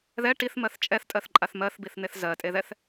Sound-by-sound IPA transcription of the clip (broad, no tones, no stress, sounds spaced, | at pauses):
ð ɛ ʈ i θ m ɜ θ t͡ʃʼ ɛ θ tʼ ɜ θ ǃʼ a θ m ɜ θ b i θ n̪ e θ z ɜ tʼ e ð ɛ θ